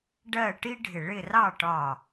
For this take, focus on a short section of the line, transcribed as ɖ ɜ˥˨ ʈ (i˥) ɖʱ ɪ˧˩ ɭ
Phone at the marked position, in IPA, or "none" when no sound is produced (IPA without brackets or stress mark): i˥